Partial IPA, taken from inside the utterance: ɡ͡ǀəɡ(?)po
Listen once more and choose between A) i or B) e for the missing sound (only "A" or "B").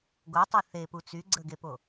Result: B